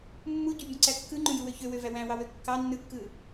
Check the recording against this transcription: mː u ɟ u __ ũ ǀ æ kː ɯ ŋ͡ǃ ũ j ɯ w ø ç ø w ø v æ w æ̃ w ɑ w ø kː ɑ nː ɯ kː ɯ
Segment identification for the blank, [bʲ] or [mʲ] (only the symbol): bʲ